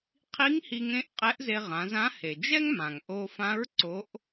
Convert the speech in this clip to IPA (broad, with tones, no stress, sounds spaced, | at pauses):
qʰ i˧˥ ŋ h i˧ ŋ ẽ˧˥ ʔ qʼ ɛ˧˥ ʔ z e˧ ʁ ã˩˧ z ã˧˥ h e˩ d͡ʒ ɛ˥ ŋ m ã˩ ŋ ʔ o˧ f ã˧˥ ɹ ǀ o˧˥ ʔ